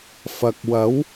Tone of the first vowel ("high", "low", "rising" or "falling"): low